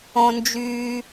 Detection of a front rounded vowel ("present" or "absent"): present